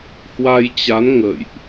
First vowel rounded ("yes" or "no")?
no